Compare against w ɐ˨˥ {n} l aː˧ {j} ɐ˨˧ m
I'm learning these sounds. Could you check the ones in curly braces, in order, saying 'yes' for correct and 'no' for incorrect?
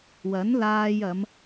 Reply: yes, yes

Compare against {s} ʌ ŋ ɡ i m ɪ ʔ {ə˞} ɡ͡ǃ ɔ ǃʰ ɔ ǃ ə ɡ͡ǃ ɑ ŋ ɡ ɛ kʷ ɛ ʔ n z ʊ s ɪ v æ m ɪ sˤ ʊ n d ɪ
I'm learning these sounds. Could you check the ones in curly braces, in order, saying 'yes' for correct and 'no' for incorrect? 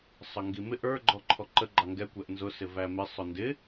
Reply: no, yes

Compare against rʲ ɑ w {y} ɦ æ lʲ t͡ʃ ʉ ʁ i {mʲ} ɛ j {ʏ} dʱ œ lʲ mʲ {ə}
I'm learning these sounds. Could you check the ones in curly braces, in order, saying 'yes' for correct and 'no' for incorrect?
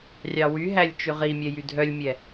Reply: yes, yes, no, no

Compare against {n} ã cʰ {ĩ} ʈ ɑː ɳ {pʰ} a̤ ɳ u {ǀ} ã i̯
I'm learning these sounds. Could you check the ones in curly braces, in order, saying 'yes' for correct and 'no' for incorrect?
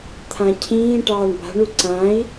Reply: no, no, no, yes

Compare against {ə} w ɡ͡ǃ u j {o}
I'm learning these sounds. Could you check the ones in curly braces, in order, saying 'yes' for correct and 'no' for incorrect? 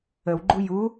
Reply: yes, no

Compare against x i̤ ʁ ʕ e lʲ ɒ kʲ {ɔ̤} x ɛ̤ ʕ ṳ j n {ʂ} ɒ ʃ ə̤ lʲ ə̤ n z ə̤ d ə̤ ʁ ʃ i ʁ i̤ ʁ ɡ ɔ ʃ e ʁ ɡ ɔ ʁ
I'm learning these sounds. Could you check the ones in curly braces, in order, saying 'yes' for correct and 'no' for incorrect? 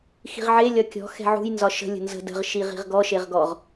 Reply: yes, no

